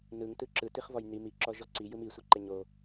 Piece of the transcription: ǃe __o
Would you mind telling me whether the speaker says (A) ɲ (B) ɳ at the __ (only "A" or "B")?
A